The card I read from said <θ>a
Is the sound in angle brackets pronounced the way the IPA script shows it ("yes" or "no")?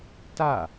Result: no